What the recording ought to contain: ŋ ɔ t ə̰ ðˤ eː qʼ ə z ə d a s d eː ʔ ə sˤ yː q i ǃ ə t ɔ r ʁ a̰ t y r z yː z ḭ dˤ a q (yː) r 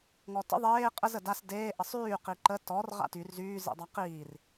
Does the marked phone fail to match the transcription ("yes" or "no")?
yes